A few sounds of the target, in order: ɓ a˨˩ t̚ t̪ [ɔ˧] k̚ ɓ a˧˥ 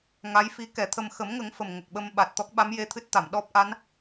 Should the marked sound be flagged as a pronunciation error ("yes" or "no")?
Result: yes